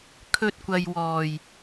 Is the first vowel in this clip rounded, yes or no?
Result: yes